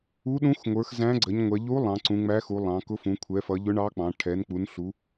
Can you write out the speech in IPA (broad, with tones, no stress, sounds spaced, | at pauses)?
u˧˥ ɗ ũ˧˥ x ŋʷ ə˞˩˧ x z æ̃˧˥ ɡ͡ǀ ə˩˧ ɲ ŋʷ ɛ˩˧ ʎ u˧˥ lˠ ɑ̃˩˧ ǀ ũ˩˧ ŋ͡m æ˧˥ x u˩˧ lˠ ɑ̃˩˧ k ʊ˧˥ f ũ˩˧ kʷʰ ɛ˩˧ f ʌ˩˧ ʎ ʊ˧˥ ɳ ɑ˧˥ k͡p ɑ̃˩˧ ʈʰ ɛ˩˧ n k͡p u˩˧ n ɬ u˩˧